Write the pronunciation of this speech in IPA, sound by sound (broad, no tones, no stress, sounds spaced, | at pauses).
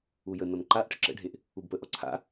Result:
u j ə n ɔ n ǃ a ʔ ʈ ə̰ ǁ ə̰ ɖʱ e ʔ | u b p ə ʔ ɔ ǀʰ a̰